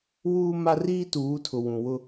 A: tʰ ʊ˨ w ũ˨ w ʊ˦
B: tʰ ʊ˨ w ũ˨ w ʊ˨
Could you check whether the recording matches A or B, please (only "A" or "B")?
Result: A